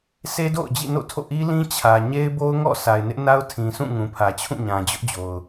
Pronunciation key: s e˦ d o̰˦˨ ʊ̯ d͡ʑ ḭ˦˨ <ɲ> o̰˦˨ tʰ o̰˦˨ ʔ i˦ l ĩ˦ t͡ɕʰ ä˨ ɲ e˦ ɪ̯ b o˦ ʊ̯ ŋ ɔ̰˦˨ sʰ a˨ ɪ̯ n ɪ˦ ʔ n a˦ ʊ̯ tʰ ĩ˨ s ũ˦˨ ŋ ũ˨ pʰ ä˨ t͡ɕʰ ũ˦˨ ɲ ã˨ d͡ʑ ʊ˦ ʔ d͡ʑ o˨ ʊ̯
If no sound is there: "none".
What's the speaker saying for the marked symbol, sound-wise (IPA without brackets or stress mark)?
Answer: n